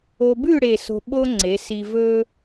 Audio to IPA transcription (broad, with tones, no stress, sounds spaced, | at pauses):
o˧ b ʉ˥˧ ɽ e˥˧ s o̤˥ ɓ o˥ ŋ͡ǀ e˩˧ s i˧ v ɵ˥